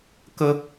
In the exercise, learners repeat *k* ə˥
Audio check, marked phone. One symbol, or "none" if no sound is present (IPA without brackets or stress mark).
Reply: k